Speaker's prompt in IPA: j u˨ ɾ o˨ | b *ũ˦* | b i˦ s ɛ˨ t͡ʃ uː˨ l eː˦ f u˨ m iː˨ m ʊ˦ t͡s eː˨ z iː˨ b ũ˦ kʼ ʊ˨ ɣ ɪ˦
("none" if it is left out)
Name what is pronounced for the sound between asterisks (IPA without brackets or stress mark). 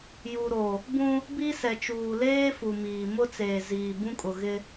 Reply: ũ˦